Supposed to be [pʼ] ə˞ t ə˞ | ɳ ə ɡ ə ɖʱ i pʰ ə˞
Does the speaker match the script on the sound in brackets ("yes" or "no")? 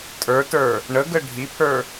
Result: no